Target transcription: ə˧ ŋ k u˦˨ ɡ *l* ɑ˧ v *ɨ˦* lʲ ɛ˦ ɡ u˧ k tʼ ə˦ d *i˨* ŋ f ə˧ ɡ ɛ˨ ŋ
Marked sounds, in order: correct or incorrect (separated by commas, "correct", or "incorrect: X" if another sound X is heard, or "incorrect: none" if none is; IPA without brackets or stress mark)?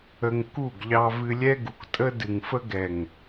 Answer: incorrect: ʎ, incorrect: ɨ˧, incorrect: ɨ˨